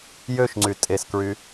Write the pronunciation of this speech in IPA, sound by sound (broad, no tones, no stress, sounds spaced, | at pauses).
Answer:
j ø ʃ ŋ͡ǀ y tʼ e s k ɹ y